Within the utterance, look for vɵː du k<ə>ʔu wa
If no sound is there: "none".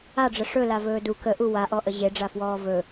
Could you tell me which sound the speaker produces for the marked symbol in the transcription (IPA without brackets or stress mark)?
ə